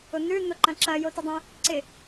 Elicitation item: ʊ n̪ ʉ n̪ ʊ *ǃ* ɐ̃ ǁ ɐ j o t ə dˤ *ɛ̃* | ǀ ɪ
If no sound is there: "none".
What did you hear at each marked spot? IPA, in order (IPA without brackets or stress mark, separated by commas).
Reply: ǃ, ɛ̃